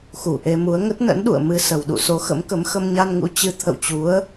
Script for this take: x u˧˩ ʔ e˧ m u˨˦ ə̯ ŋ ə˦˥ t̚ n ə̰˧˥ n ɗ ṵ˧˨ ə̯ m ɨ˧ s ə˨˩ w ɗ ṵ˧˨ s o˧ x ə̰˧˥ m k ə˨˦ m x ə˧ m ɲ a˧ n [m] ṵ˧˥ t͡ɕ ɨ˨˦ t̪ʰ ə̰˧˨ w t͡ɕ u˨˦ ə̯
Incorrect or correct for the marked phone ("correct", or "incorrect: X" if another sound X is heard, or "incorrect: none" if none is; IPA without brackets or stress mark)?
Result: incorrect: ŋ